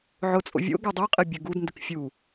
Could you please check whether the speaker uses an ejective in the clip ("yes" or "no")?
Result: yes